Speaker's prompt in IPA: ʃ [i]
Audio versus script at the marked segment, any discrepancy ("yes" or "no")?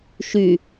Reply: yes